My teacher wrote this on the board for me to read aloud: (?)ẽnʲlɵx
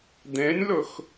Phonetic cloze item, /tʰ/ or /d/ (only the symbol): d